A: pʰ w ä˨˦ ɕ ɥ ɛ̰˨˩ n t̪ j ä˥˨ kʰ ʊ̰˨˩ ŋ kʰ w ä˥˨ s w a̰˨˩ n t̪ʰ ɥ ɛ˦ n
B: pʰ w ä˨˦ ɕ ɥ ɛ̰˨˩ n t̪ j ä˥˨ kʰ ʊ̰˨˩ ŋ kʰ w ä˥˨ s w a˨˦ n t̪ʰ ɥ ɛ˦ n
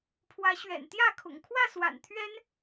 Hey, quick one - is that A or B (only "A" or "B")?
A